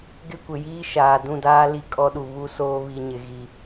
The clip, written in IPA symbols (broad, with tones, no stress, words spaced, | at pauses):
ɡɪ˦kʷɪ˨jiː˦ ʃaː˨dũ˦˨daː˦ li˦˨kʼɔ˦ɗu˨ βu˦soː˦ βi˨ ɲɪ˨ɣi˨